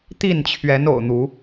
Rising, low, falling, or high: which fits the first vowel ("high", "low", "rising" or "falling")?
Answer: falling